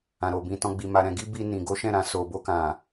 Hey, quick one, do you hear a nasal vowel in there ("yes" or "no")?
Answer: yes